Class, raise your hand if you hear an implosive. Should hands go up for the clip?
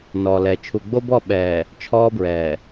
yes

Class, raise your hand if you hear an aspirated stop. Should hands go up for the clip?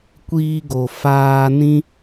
no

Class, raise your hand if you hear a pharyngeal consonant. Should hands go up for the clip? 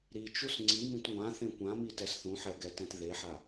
yes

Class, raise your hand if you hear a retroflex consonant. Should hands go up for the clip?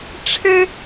yes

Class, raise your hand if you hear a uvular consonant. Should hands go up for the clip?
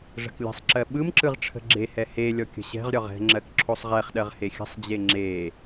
yes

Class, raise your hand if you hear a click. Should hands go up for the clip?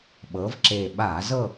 yes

